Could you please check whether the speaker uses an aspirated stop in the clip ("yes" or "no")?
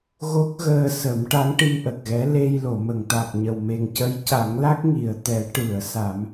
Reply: no